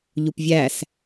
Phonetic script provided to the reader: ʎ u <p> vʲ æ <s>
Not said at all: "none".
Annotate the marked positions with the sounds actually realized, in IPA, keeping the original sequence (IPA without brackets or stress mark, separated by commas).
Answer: p, s